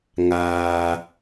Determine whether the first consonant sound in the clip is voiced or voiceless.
voiced